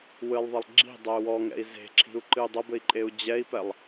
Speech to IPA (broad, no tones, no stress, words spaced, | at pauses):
wɨlˠðˤɘlˠ ɡ͡ǁi̤dˤɛu̯ wɔŋɛ̰i̯ ze̤ǁʰi̤u̯ǃɨy̯ dˤɐbɘi̯ǃʼeu̯ d͡ʑɛi̯pɛlˠ